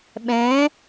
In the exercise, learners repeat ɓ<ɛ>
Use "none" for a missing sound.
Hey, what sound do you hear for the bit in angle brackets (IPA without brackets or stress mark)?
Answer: ɛ̃